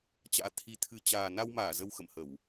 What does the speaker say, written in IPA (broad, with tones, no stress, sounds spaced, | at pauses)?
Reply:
t͡ɕ a̰ː˧˥ t̪ʰ i˧ t̪ʰ ɨ˧ t͡ɕ aː˨˩ n a˧ w m aː˧˩ z ə˧ w x ə̰˧˨ m h ə˧˩˨ w